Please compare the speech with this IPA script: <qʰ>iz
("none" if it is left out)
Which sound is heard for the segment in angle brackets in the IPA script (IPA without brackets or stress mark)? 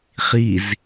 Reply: χ